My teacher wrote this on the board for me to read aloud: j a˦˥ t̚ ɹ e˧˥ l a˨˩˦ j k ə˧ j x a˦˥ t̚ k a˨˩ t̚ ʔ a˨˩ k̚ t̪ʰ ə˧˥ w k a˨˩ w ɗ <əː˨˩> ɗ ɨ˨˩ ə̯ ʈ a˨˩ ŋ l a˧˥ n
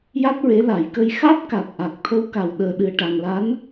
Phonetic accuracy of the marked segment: correct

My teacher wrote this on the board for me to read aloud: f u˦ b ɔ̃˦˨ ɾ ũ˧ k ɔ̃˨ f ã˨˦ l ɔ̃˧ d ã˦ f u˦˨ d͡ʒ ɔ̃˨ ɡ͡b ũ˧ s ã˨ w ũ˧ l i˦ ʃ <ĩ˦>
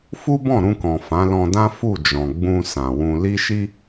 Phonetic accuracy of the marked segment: incorrect: i˦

